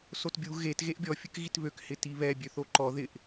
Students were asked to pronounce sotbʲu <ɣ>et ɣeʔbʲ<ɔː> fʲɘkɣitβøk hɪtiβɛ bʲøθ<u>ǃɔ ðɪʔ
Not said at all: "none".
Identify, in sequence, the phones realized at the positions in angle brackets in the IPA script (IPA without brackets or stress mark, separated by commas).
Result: ɣ, ɔ, o